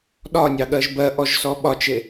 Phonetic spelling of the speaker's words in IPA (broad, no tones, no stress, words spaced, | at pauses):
ɗɒnʲɑɠɜʒ bɜʔɔʒsɔ ɓɒt͡ʃe